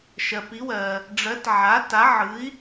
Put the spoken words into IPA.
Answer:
ʃ ɜ˩ p i˩˥ w ɜ˩ | ɖ͡ʐ ɜ˩˥ t ʕ a˩˥ t a˩˥ ʕ ɯ˩˥ i̯

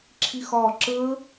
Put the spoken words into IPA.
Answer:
ǁʰ i˧˩ x ɒː˧˩ ǁ əː˦˥

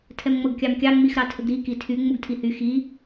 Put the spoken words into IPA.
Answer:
tʰ ɛ m ŋ͡m ɤ ɡ kʲ ɑ m kʲ ɑ ŋ͡m i x ɾ ɑ tʰ ə ɡ ɾ i k i tʰ y ŋ͡m u ɡ tʰ i h y x i

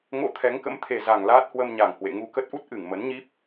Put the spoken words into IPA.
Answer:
ŋ o̰˧˥ t̪ʰ ɛ˨˦ ŋ k ə̰˧˥ m t̪ʰ e˨˩ z a˨˩ ŋ l aː˦˥ t̚ h w ə˧ m ɲ a˨˩ ŋ h w ḛ˧˨ ŋ u˧ k ə˦˥ t̚ ʔ u˦˥ t̚ ʔ ɨ˧˩ ŋ m ə˨˦ n ɲ i˦˥ p̚

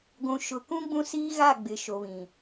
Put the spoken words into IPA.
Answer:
ɡʷ ũ˨ ʃ ʊ˨ k ũ˦ ɡ͡b ũ˦ s iː˦ ɣ a˦˨ ɡ͡b ɪ˨ ʃ o˨ β ĩ˨

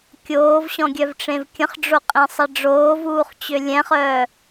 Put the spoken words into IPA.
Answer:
kʲ oː v ɕ ɔ̃ ɡʲ œ v ʈ͡ʂ ẽ v kʲ ə̃ χ ɖ͡ʐ o qʼ ẽ sˤ ɛ ɖ͡ʐ oː v uː χ t͡ɕ ø lʲ ɛ̃ χ œː

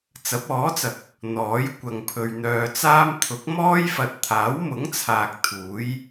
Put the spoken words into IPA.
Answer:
t͡s ɐ˨˥ p̚ ɔː˨˥ t͡s ɐ˨ k̚ | n̪ ɔː˨˥ j kʷ ɐ˧ ŋ pʰ ɵ˧ ɥ n̪ œː˧ t͡s aː˥ m t̪ʰ ʊ˨˥ k̚ m ɔː˥ j f ɐ˨ t̚ t̪ʰ aː˨˥ w m ʊ˨˥ ŋ t͡sʰ aː˨ k̚ t̪ʰ uː˨˥ j

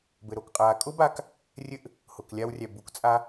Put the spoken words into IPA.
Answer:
b ɘ˨ ɾ o˨ k qʼ aː˨ kʼ ʊː˦ b aː˧ k | rʲ ɘ˧ ʔ | h ʊː˨ k lʲ a˧ w rʲ æ˨ b u˨ k t͡sʼ a˧

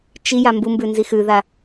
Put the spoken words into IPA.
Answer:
t͡ʃ i j a m b u m b ʉ n z i x ʉ ð a

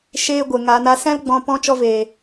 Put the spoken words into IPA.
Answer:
ʃ eː˧ ɡʷ e˨ ŋ aː˧ n a˦ s ɛ̃˦ l ɡ͡b ɔ̃˧ p ɔ̃˦ t͡ʃ ɔ˦ v eː˨

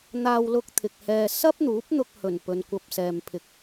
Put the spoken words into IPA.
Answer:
n̪ aː˧ w l ʊ˧ k̚ t̪ʰ ɪ˨ k̚ h ɛː˧ s ɐ˥ p̚ n̪ uː˨˥ p̚ n̪ ʊ˧ k̚ h ɵ˨˩ n p ɵ˨˧ n kʷ ɐ˧ p̚ s ɛː˨ m pʰ ɪ˨ k̚

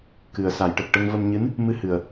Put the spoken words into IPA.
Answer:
k ɨ˨˩ ə̯ s a˨˩˨ j ʈ ə˨˩ k̚ ʈ ə˧ ŋ v ə˧ m ɲ ɨ˧˥ n | m ɨ˧ h ɨ˨˩ ə̯

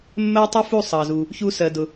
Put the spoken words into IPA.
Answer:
mː ɜ˥ tˤ u˥ f u˥˩ sˤ ɑ˩ z u˩ | ç u˧ s ɜ˩ d ʊ˩

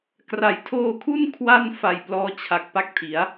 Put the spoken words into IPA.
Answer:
k r a˩˦ j tʰ oː˧ kʰ u˥˩ n kʰ w a˥˩ n f a˨˩ j p l ɔː˦˥ t͡ɕʰ a˨˩ k̚ p a˥˩ k̚ tʰ i˩˦ a̯

